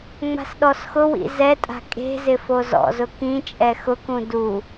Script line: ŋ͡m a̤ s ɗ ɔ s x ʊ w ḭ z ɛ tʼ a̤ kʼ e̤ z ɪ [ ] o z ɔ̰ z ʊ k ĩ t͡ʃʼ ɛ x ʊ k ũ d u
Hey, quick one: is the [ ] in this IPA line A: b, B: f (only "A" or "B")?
B